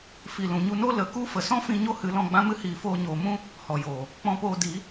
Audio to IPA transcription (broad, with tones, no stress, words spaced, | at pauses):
fi˨lũ˨ɲu˧no˦ lə˨˦ku˦ fə˨sɔ̃˦fĩ˧ ɲo˦hɨ˨˦lɔ̃˧ɡ͡bã˦ mɨ˧hiː˨ foː˧ɲoː˨mũ˦ | hɔ˨joː˨ | k͡pɔ̃˧poː˧di˨˦